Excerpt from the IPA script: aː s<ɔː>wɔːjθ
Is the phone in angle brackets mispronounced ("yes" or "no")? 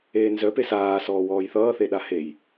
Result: no